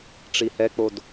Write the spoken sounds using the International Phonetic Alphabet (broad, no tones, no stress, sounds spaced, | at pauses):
ʈ͡ʂ i h ɛ k͡p o d